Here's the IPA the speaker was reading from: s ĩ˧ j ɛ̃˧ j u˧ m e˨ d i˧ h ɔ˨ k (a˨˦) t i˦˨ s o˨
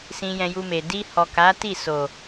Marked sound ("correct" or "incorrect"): correct